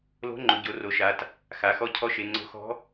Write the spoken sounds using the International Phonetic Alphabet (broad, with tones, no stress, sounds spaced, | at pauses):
l o̤˧˥ ŋ͡ǃ ʊ˩˧ ɟ o˩˧ r o˩˧ ʃ a˩˧ t | x a˩˧ x ɔ˧˥ cʰ ɔ˧˥ ʃ e˩˧ ŋ͡ǀ o̤˧˥ x ɔ̤˧˥